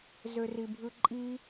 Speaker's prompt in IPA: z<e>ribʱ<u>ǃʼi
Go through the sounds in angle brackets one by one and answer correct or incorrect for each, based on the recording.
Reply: incorrect: ø, incorrect: ɯ

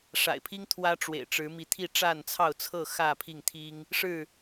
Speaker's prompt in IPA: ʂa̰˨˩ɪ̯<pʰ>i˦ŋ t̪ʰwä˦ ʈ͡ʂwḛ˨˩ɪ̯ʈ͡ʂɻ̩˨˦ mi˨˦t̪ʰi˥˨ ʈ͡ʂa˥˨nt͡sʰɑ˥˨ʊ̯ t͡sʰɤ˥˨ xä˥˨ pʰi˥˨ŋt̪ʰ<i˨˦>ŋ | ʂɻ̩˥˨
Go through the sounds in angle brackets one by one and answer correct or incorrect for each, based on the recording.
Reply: correct, incorrect: i˦

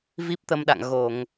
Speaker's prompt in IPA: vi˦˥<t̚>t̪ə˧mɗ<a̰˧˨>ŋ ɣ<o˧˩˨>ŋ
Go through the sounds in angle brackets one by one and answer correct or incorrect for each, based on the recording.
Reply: incorrect: p̚, correct, correct

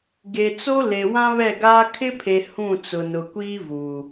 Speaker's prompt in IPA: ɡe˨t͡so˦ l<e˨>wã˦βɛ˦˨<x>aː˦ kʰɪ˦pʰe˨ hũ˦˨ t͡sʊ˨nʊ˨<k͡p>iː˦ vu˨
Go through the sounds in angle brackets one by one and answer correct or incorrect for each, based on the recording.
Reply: correct, incorrect: ɡ, incorrect: kʷ

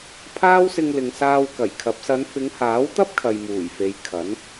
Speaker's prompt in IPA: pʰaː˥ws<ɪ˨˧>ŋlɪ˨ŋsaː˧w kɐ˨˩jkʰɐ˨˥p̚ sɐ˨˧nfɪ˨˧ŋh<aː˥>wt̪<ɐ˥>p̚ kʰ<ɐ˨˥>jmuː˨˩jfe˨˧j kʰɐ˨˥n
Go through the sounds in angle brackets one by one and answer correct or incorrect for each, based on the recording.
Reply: incorrect: ɪ˧, incorrect: aː˨˥, correct, incorrect: ɐ˨

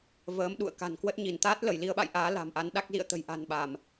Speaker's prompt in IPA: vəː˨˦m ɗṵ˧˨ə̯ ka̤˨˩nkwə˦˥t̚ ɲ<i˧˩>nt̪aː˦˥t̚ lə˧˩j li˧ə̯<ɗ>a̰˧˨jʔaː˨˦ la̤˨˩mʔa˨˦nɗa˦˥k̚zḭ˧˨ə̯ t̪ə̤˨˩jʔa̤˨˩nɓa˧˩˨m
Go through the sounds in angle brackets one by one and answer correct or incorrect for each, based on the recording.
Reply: correct, incorrect: ɓ

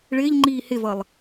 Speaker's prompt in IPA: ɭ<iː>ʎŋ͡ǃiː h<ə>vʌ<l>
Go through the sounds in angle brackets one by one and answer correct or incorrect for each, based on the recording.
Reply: incorrect: ɪː, incorrect: ɪ, incorrect: lˠ

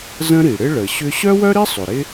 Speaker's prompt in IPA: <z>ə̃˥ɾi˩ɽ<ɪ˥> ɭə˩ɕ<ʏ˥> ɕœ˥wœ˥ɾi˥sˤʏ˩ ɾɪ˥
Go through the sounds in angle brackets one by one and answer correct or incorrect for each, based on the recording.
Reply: correct, correct, correct

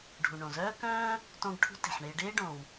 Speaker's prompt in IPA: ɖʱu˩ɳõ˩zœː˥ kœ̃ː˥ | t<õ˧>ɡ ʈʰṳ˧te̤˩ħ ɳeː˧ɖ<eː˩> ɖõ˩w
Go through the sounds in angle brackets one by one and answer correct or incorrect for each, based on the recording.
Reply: correct, incorrect: eː˥

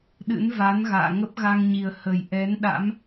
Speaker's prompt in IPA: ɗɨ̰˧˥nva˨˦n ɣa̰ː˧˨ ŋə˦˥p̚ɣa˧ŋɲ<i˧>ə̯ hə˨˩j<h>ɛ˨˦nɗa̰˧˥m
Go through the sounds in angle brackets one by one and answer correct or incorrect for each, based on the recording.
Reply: incorrect: i˨˩, incorrect: ʔ

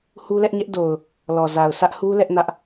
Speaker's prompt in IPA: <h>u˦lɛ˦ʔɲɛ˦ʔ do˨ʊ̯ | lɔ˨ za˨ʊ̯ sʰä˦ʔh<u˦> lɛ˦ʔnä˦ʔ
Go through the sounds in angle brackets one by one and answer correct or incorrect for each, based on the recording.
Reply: correct, correct

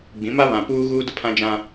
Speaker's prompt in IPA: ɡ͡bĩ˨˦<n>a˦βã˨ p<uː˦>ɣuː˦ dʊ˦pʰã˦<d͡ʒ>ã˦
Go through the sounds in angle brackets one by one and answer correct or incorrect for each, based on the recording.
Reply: incorrect: m, correct, correct

